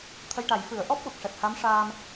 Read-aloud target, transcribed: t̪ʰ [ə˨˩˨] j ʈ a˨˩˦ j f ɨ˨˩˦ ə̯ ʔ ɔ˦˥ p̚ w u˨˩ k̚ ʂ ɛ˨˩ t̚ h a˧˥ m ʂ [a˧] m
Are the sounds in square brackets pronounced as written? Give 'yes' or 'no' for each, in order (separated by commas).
no, no